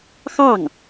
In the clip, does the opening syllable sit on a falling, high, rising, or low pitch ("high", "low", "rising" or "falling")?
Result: falling